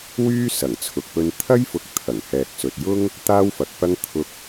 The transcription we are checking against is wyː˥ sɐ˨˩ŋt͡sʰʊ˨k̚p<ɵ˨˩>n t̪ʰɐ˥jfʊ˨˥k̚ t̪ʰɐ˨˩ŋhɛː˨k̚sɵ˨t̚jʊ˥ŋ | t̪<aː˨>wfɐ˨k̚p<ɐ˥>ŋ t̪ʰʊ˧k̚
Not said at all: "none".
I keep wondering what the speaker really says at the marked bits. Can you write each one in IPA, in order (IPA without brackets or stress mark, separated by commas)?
ɵ˧, aː˥, ɐ˥